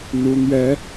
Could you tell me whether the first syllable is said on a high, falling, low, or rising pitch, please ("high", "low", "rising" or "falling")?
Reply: rising